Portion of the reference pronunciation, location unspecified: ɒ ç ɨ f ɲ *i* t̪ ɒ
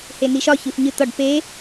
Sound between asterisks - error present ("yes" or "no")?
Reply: yes